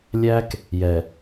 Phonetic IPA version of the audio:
lʲæ˦k | jɛ˨

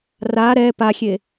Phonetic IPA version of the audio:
ra ɾɛ paxʲe

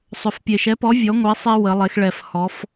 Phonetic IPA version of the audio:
sˤʏ˨˩fpʲe˨˩ʃɛ˨˥pɔ˨˥ vʲɔ˨˥ŋʷe˨˥ sˤe˦ wə˩˧lˠe˩˧xɭɛ˨˩f hɔ˩˧f

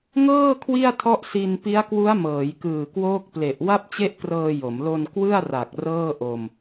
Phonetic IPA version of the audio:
ŋɤː˥˩ kʰwi˥˩a̯tʰɔ˦˥ʔ si˧n pi˦˥a̯kwu˦˥a̯mɤː˩˦jkɯː˨˩ kwoː˦˥k̚ple˨˩ʔ wa˥˩p̚t͡ɕe˥˩ʔkrɤː˧ jo˩˦m lo˧n kwɯ˥˩a̯ ra˨˩k̚ rɤː˥˩ʔo˧m

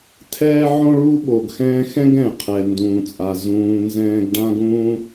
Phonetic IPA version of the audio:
tʰɛː˥ ʕõ˥ɭu˥ ɓo˩ɡxɛ̃ː˦xɛ̃˥ɡ ɛ̃˩qʰɛ˩ndũː˩t͡sʼa˩ zũː˨ nzɛ̃ː˦ɡɖã˥ɡũː˥

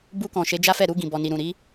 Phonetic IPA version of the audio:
bu˧kɔ̃˨ ʃe˨˦d͡ʒa˦fɛ˦˨ ɾu˧ɡĩ˨bɔ˨ni˨ ɾũ˨ɾi˨˦

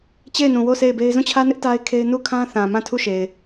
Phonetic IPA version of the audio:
t͡ɕe˦˨ɪ̯nũ˨wo˦˨ sʰe˦˨ɪ̯be˦ɪ̯ zũ˦˨t͡ɕʰä˦nɪ˦ʔ ta˦ɪ̯kʰe˦ɪ̯ nu˦˨kʰã˦θã˨ mã˦˨tʰu˦˨ʃe˨ɪ̯

